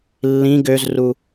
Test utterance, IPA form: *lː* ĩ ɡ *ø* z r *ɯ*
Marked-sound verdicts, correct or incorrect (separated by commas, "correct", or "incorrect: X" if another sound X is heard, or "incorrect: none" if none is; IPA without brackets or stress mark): correct, correct, incorrect: u